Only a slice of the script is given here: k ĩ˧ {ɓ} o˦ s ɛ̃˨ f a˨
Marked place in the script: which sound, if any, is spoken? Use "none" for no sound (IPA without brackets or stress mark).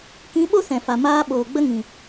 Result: ɓ